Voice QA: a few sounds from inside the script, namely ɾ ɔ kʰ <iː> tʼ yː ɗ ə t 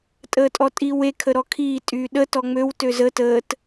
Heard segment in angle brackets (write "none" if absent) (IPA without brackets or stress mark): iː